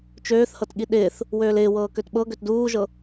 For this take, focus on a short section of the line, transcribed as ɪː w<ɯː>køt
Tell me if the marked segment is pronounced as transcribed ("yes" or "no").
no